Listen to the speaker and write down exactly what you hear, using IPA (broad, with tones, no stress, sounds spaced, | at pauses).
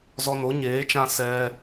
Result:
z ɔ˧ n o˨˦ ɲ eː˨˦ t͡ʃ ã˧ s ɛ˧